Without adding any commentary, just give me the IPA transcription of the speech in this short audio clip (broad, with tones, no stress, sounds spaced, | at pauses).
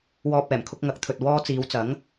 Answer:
w ɔː˧ p̚ ɛː˨˩ m kʰ ʊ˧ k̚ ŋ ɐ˨˥ k̚ t̪ʰ ɵ˨ t̚ w ɔː˧ t͡s iː˨˧ w t͡s ɐ˨˥ ŋ